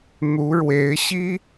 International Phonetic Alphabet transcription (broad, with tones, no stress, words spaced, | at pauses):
n̪u˧˥ɻwe˧˥ɪ̯ɕi˥